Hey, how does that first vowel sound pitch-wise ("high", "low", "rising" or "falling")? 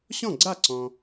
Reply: falling